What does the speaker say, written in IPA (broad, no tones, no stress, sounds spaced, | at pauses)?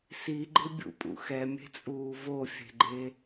s i ɡ͡ǃ ɪ bʲ ṵ pʼ ṵ x ɛ mʲ e̤ t͡sʼ uː v o fʲ e̤ ɡ͡ǃ e